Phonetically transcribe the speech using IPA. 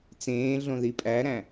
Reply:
t͡sẽːɮõ ðipʼæɾæ̃

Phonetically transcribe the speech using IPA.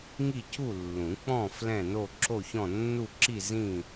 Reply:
ŋi˥˨cu˥˨ lːũ˨˩˦k͡pɔ̃˥˨ flɛ̃˥˨no˥˨ ǁo˥˨çɔ̃˥˨ nːu˥˨ǁi˥˨ zĩ˥˨

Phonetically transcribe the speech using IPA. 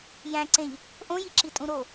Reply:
jæ̃ǀẽʎ | ʔõji ǁitʼũɾo

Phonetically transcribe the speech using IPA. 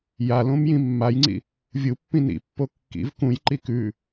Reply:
jalõmjĩ mːajŋ͡ǀḭ | vʲupːĩ nḭpːo kːḭv kũjǃi kʉ

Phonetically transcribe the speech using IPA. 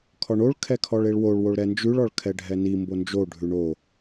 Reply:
kʰɔɳoɭ kʰɛkʰɔɭeɭwoɭ woɭɾɛnd͡ʒʉɭ ɔɭkʰɛɖʱɛni mbond͡ʒo ɖʱʉɳo

